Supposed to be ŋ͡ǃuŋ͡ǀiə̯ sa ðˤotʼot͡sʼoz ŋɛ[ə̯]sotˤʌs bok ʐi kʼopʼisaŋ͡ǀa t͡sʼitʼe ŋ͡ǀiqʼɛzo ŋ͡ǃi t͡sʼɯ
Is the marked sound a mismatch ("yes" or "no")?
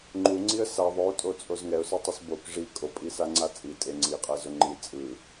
yes